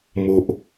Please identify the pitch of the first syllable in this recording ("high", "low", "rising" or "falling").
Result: low